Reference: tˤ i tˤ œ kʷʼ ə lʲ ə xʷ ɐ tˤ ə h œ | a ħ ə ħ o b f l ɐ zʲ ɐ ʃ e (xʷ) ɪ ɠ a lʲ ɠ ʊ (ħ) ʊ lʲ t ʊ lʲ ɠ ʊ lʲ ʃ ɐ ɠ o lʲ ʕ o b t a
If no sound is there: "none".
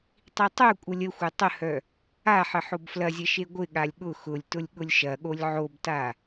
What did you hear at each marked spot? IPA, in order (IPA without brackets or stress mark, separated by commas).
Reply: ɡʷ, x